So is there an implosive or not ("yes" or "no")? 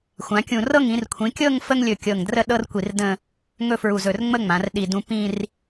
yes